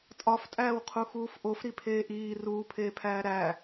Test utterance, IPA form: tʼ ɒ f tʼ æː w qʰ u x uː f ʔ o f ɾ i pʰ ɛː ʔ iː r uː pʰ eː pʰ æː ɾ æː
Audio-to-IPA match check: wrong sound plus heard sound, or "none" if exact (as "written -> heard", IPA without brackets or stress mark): ɛː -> eː